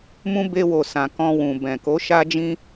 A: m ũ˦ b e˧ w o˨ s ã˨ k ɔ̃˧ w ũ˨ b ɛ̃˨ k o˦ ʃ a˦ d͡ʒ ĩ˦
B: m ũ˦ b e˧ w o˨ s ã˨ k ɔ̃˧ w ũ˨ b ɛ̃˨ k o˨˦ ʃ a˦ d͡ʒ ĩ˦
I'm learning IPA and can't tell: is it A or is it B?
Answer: B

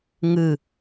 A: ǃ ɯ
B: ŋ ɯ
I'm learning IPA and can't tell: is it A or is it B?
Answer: B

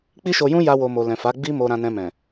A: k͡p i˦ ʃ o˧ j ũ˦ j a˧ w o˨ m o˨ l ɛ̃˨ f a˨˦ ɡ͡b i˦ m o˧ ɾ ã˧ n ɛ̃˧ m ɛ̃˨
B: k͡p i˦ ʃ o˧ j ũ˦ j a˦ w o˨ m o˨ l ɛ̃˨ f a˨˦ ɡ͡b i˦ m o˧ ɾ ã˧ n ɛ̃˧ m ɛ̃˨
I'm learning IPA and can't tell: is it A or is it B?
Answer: A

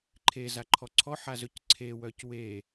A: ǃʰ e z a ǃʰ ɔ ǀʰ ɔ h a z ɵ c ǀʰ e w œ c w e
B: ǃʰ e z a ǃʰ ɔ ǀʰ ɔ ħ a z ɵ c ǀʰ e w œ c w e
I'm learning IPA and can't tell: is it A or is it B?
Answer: B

